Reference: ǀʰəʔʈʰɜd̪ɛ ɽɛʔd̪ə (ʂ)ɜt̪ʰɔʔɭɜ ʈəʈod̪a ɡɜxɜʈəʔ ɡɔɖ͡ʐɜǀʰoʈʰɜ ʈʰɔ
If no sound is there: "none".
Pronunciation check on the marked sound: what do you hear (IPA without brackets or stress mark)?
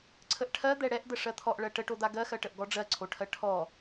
ʂ